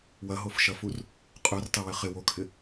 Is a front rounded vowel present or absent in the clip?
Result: present